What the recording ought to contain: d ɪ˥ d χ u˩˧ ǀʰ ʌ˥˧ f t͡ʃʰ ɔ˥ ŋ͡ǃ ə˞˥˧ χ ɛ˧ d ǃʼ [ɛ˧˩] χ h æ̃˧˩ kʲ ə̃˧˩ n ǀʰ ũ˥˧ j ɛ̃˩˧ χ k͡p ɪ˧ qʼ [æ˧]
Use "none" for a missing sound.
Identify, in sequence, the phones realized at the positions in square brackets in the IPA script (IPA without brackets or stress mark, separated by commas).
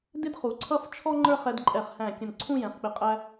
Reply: ɛ˧˩, æ˧